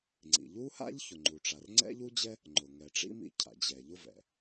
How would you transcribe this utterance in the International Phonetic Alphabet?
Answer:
ŋ͡ǀḭ˩ʎu˥ha̰˥ʎ çʊ˩ŋ͡ǃu˩ʈ͡ʂa˩r ŋ͡ǀɛ̰˥ʎu˥d͡ʑɛ˥ | ŋ͡ǃʊ˩ ŋɛ˩ʈ͡ʂḭ˥mḭ˧ cʰa̰˩d͡ʑɛ˩ʎʊ˥vɛ̰˩

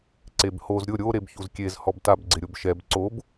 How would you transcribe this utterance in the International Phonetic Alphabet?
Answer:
ǀebhoz ɾʲʊ ɾʲo ɾebçuzkʲez hɔbtab ɡ͡ǀɪɾʲobʃɛb ǀob

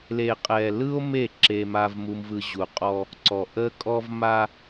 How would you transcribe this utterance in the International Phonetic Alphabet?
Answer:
le˨qʼɛ˨ lɯ˦o̯me˦˨ ǁe˦ma˦vmu˦mvɯ˦ ʑu˨qʼɔ˦ | ǀɔ˨ʔə˦kʼɔ˦v ma˦

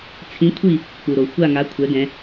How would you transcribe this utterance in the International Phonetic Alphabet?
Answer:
t͡sʰĩ˨˦kʷʰi˦˨ | k͡pu˩ɾo˩ xʷa˦˨ŋa˨˦ kʷʰɛ˨˦ɡɛ̃˨˦

